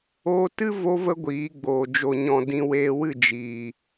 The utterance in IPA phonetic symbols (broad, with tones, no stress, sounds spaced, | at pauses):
oː˧ t ɨ˦ v o˦ v ə˦ ɡʷ iː˨˦ ɡ͡b oː˨ d͡ʒ o˨ ɲ ɔ̃˨ d ĩ˧ w eː˧ w ɨ˦˨ d͡ʒ iː˨